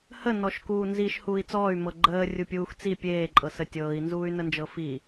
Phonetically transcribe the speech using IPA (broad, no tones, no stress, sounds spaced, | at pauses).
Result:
h ə n ɔ ʃ k uː n z i ʃ h uː i̯ t͡s ɔː y̯ m ɤ ɡ͡ǃ əː rʲ u pʲ uː x t͡s i pʲ eː ǃʼ ɤ s ə tʲ ɤː i̯ n z uː y̯ n ə n d͡ʒ ɤ f i